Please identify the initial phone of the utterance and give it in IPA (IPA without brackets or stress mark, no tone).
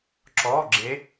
ǁ